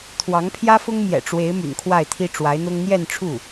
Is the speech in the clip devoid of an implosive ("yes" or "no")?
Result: yes